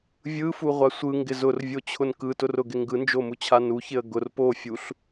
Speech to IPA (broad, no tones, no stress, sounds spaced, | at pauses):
vʲ ɯ f u ʁʷ a sʷ ɯ ŋ ɡ ɪ z ʊ r vʲ o t͡ɕʰ ʊ n k ɯ t ʊ r ʊ ɡ ɪ ŋ ɡ ɯ n d͡ʒ o m u t͡ɕʰ a n u ç ɪ ə̯ ɡ ʊ r p o fʲ u ɬ